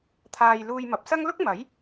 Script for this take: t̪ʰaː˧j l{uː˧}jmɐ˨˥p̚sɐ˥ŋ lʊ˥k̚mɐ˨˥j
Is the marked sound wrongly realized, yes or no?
no